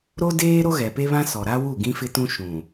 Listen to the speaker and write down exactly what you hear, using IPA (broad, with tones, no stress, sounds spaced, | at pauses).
ɾ o˦ d eː˦ ɾ o˦ ɣ ɛ˨ p e˦ β ã˦ s ɔ˨ ɾ a˦ w u˦˨ ɡ ĩ˦ f ɪ˦ t ũ˦ ʃ ũ˨